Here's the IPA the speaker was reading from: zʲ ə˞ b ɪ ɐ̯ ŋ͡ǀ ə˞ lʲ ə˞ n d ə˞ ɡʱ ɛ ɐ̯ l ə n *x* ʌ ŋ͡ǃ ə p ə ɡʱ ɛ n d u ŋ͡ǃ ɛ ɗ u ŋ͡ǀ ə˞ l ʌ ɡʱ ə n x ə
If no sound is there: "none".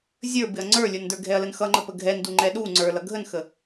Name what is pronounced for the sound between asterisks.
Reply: x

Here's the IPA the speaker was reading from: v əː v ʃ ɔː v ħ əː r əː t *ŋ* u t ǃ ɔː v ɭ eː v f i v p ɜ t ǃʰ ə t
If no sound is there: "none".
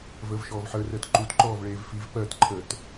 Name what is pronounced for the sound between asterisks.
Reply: ǃ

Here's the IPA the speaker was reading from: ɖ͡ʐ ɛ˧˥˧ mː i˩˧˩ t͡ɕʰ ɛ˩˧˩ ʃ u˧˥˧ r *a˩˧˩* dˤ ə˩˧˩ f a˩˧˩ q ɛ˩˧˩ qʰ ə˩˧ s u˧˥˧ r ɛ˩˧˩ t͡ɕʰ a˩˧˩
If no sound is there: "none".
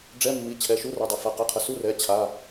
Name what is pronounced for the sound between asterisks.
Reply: a˩˧˩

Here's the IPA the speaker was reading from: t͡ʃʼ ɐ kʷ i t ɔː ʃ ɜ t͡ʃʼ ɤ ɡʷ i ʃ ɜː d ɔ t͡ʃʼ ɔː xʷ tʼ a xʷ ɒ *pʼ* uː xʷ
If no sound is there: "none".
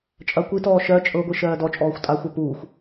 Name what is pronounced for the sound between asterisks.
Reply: p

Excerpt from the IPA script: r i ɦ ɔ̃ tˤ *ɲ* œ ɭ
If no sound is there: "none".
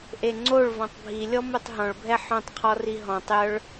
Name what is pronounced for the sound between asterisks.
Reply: j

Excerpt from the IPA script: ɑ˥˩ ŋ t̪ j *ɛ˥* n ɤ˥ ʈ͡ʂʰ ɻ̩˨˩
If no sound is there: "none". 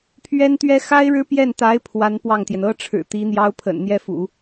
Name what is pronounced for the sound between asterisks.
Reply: ɛ˩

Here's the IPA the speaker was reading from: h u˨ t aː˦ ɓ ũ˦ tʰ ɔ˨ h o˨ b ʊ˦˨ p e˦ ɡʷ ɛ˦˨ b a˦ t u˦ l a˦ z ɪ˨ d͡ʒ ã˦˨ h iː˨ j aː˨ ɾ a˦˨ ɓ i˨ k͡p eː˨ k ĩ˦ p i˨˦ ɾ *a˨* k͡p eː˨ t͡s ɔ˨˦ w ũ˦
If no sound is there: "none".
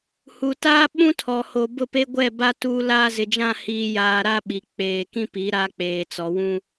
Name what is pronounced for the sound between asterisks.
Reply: a˦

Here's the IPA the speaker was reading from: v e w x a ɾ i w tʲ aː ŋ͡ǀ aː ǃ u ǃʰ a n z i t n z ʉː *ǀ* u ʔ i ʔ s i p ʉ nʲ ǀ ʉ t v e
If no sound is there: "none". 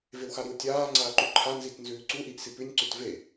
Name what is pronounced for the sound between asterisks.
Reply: ǀ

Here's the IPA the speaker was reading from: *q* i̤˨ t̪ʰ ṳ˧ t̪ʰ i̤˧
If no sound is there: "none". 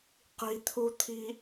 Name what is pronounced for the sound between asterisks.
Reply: q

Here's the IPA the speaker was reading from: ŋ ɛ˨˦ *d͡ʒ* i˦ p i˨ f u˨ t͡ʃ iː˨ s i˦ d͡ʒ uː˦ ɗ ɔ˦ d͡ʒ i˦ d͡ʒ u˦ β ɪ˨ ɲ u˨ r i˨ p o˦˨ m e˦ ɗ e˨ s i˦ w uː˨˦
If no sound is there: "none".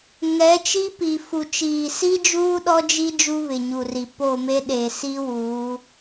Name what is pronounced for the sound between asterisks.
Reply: t͡ʃ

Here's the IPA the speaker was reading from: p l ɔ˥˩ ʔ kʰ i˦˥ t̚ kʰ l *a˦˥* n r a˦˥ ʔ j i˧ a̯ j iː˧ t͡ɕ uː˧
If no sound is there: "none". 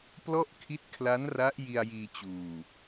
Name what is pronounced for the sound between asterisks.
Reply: a˦˥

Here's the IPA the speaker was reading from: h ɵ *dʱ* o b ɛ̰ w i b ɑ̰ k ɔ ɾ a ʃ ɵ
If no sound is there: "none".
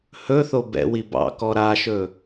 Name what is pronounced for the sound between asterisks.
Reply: θ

